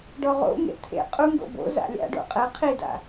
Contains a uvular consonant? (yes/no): yes